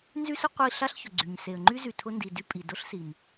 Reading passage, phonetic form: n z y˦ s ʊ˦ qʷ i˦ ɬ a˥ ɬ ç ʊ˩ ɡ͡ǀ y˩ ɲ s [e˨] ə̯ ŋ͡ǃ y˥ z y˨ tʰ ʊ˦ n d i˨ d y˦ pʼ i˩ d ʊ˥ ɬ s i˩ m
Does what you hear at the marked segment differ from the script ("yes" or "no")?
no